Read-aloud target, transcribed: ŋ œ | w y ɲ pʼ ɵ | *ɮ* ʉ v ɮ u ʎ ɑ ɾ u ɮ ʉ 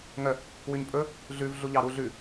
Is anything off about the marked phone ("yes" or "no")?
no